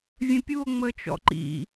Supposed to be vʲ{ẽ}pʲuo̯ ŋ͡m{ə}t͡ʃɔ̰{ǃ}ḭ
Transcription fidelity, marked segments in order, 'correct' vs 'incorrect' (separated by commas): correct, correct, correct